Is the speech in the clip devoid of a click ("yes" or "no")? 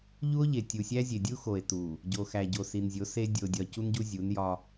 yes